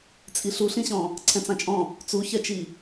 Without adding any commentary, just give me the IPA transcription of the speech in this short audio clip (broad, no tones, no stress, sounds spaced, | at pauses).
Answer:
t͡sʼ i ɬ u ɬ ĩ ɕ ɔ̃ | ǀʰ ɛ̃ t͡s ã t͡ʃʼ ɔ̃ | t͡s u ç ɛ t͡ʃ i